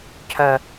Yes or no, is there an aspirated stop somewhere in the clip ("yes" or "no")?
yes